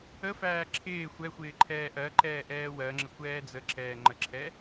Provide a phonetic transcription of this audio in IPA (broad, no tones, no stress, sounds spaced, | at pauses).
ə f æː ǁʰ ɪː xʷ ɛ xʷ ɪː ǃʰ ɛː ʔ ɜ ǃ ɛː ʔ ɛː w ɜ ŋ͡ǁ ə kʷ ɛː d͡z ə ǁ ɛː ŋ͡ǃ ə ǁʰ ɛ